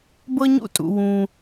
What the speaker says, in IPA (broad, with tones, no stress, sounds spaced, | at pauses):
b ɤ˥ ɲ ṵ˥ tʼ ṵ˩ w ũ˩